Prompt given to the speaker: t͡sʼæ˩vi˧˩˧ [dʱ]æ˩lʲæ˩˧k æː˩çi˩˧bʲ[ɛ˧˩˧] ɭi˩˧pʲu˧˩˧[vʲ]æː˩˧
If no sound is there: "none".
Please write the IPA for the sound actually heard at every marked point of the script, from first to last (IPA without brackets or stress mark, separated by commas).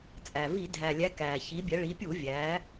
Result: dʱ, ɛ˩˧, vʲ